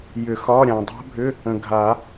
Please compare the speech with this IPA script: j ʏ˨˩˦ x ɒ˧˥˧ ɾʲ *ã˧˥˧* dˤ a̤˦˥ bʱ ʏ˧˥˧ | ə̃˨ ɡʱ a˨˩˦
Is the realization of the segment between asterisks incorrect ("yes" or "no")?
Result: yes